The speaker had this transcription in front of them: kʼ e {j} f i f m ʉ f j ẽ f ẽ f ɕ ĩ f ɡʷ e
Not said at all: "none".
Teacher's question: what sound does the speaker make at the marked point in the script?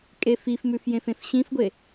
none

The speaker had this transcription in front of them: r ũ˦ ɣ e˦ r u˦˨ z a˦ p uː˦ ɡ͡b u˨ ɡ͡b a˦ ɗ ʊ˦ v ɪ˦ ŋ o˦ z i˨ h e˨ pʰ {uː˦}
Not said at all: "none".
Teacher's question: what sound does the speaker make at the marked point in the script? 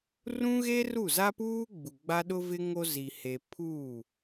uː˦˨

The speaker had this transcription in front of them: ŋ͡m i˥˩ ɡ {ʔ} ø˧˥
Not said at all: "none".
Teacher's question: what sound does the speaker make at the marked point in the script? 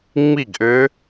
ʔ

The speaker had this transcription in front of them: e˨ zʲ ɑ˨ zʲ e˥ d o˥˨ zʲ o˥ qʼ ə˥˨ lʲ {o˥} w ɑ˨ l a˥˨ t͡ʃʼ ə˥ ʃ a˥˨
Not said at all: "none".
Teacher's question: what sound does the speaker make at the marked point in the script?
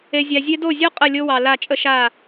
o˥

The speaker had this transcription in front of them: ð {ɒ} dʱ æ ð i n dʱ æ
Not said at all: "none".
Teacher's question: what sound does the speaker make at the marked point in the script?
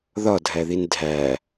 ɒ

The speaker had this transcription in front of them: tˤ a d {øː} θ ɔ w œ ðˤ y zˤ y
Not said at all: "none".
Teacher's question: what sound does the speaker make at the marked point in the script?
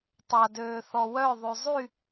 øː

